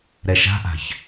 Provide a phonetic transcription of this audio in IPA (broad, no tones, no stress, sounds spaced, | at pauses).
ɾ ɛ ʃ a̤ ʔ a̤ ç